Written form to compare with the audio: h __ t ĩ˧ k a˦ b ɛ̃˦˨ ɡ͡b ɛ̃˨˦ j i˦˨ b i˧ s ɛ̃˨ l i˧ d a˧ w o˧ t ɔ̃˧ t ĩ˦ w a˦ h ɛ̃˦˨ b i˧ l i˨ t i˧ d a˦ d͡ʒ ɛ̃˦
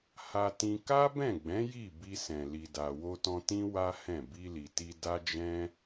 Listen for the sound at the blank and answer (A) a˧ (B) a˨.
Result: A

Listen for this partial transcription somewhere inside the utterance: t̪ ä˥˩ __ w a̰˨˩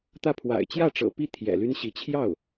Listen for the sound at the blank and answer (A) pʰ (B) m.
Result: A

